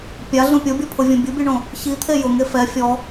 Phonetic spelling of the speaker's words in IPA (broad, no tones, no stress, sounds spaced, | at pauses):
pʲ a ɮ ũ pʲ o bʲ ɔ pʰ ʊ vʲ õ bʲ u bʲ u ɳ õ | ç i t̪ʰ e j ʊ ŋ e f ɛ fʲ ɔ